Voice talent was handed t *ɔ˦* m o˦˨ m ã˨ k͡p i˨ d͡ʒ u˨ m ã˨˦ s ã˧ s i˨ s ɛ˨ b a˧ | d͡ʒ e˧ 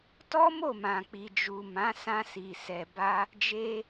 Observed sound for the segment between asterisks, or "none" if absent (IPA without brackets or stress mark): ɔ˦